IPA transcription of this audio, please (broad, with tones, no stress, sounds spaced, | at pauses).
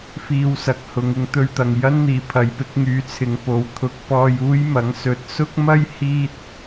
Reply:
f iː˧ w s ɐ˨ k̚ h ʊ˨˧ ŋ ɪ˧ ŋ t̪ ɵ˧ ɥ t̪ ɐ˨ ŋ j ɐ˥ n n̪ iː˨˩ pʰ ɐ˨˧ j p ɪ˨˥ k̚ ŋ yː˨˥ t͡sʰ ɪ˨˧ ŋ p o˨ w t̪ʰ ʊ˨˥ k̚ p ɔː˧ j uː˥ j m ɐ˨˥ ŋ s ɵ˨ t̚ s ʊ˥ k̚ m ɐ˥ j h iː˥ t̚